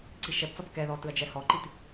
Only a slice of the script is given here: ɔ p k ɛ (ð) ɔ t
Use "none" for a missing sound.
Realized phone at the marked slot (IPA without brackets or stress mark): ð